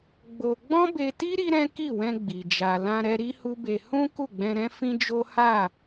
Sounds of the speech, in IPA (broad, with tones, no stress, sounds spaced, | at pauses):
ɡ͡b o˧ ɡ͡b ɔ̃˦ b e˧ t i˦ ɾ i˦ ɾ ɛ̃˦ k i˦˨ w ɛ̃˧ ɡ͡b i˨ d͡ʒ a˨ l ã˧ ɾ ɛ˧ ɾ i˦ h u˦ b e˧ h ũ˦ k u˦˨ ɡ͡b ɛ̃˧ ɾ ɛ̃˦ f ĩ˦ d͡ʒ o˦ h a˦˨